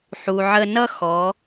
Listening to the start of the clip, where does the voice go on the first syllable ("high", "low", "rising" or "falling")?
low